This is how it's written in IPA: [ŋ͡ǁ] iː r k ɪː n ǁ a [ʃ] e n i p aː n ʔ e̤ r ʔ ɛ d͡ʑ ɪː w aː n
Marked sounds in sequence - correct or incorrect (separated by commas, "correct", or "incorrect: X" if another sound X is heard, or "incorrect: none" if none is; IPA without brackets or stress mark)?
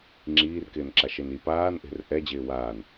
correct, correct